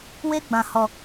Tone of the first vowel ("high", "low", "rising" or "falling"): high